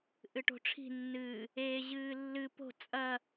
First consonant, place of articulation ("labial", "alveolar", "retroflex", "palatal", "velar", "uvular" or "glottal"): glottal